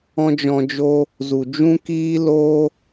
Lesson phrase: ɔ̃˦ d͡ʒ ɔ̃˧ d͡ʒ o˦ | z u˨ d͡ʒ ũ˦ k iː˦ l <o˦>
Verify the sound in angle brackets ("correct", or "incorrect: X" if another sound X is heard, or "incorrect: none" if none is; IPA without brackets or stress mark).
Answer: correct